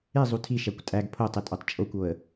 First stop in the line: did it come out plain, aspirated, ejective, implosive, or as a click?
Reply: aspirated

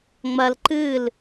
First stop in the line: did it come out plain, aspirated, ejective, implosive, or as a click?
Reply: click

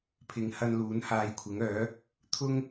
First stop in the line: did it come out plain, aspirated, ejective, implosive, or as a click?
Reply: aspirated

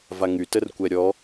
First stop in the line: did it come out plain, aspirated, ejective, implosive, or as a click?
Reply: plain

